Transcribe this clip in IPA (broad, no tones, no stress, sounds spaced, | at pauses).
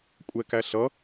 kʷʼ ɛ k æ ɬ ʌ